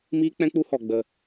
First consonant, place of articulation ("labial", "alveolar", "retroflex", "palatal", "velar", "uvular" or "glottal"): labial